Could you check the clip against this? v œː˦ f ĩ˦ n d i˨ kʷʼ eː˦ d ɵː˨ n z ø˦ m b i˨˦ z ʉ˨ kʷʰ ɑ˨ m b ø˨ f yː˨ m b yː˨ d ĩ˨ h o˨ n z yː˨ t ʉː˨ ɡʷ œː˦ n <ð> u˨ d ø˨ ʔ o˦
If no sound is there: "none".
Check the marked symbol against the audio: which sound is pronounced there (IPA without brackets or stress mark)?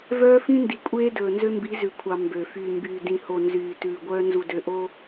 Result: z